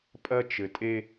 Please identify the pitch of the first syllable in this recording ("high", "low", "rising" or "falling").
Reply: high